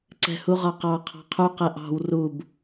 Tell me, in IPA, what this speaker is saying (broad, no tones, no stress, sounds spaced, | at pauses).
ǀ ɛ̤ h u ʁ ɒ q ɑ qʰ ɑ̤ qʰ u q ɛ ʔ ɑ̤ w r u b